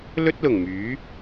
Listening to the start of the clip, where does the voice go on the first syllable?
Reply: high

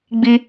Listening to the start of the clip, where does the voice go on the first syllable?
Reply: high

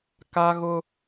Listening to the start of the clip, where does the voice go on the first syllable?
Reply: high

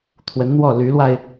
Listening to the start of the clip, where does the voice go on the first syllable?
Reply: rising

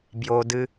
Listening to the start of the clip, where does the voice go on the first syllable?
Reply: low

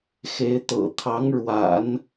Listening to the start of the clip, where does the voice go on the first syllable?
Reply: rising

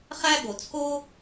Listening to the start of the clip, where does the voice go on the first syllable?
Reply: high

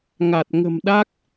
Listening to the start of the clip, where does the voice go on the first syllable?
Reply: low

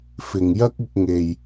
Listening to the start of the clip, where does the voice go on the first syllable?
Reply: low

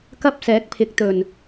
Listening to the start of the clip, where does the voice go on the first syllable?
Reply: high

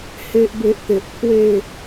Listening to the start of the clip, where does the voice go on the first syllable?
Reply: high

